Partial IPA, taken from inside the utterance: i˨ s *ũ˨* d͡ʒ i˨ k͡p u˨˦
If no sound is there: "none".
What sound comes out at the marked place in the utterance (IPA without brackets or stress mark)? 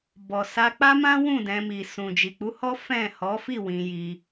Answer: ũ˨